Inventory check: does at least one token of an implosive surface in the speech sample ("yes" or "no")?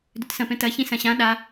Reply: yes